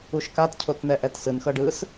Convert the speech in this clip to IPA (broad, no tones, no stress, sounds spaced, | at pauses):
u ʃ k a t cʰ o t n ɛ ʔ ɛ t s ɯ n x ɤ ɖ ɯ s